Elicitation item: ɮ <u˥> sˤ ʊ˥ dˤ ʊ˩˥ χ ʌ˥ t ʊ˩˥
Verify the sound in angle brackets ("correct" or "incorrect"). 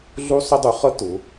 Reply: correct